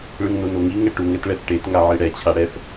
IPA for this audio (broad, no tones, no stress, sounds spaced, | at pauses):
ɭ ɯ ŋ n o n o ŋ i ŋ ɛ ʈ u ŋ ɛ t ɭ ɛ f ʈ e t ŋ a ʕ i ɽ ɛ t͡ɕʰ a ɽ ɛ f